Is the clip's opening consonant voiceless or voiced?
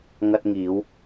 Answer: voiced